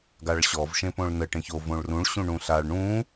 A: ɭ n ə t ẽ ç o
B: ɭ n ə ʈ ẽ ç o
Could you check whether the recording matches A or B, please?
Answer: B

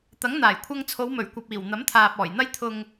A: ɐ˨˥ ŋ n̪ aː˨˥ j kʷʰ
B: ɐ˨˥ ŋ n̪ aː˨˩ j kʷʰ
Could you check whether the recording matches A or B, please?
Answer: B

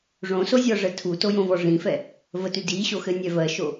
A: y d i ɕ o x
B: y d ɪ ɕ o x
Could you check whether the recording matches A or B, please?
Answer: A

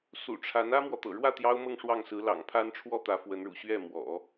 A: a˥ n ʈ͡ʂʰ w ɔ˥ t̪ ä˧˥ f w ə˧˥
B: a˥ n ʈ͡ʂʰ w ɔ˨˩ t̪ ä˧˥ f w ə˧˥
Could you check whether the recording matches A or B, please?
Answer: A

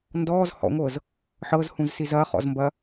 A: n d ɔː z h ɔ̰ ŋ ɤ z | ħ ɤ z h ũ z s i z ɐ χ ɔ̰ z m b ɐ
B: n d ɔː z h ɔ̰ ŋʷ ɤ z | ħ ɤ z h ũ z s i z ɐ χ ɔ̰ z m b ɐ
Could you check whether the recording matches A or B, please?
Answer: B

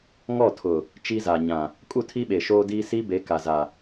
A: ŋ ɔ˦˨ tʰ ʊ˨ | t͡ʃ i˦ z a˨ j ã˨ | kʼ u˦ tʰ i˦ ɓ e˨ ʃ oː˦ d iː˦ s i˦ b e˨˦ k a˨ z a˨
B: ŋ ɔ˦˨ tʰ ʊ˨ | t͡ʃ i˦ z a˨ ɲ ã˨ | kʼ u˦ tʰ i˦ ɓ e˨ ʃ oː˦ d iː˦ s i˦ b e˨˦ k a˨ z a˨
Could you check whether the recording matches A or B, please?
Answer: B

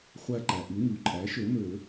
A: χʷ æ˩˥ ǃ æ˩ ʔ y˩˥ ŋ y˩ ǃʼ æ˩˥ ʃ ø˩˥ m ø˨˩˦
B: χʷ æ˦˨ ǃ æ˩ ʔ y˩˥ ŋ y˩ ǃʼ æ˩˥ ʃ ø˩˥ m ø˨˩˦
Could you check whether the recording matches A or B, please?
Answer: B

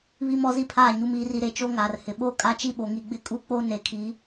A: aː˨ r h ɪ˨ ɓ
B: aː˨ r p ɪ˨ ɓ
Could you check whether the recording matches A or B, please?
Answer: A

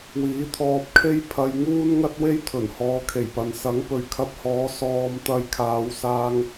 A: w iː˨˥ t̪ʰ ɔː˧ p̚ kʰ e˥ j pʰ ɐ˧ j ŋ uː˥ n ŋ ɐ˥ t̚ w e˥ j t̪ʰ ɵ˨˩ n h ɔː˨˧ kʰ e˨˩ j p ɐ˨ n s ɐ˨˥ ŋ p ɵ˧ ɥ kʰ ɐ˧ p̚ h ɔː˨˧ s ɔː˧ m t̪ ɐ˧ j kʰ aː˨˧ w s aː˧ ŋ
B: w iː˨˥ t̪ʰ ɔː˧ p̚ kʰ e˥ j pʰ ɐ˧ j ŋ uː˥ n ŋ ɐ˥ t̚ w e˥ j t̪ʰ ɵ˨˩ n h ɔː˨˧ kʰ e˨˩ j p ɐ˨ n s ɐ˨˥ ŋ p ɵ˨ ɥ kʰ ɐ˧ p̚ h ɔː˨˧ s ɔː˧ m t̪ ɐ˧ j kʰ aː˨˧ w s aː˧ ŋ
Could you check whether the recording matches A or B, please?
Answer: B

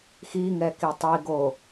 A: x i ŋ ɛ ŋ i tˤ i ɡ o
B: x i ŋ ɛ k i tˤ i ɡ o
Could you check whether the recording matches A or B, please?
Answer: B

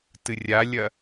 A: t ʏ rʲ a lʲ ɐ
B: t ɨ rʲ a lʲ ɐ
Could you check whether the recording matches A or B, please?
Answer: B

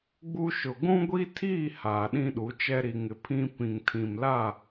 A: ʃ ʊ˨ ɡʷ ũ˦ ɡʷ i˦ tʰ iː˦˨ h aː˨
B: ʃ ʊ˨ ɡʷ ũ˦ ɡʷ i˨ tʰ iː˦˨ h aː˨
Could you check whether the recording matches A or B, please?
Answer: A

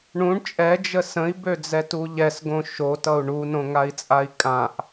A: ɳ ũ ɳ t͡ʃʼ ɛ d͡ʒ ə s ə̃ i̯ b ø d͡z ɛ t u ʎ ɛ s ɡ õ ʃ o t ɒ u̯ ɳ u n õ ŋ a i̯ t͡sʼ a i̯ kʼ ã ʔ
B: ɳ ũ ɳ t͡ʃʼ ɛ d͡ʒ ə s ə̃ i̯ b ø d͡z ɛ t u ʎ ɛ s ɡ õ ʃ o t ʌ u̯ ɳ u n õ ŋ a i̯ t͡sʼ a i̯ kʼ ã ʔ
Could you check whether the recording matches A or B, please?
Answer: B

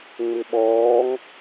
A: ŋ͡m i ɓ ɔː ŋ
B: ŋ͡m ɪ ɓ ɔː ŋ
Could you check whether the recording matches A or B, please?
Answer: B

